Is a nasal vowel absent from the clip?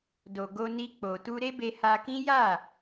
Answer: no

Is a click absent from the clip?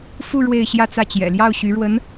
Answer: yes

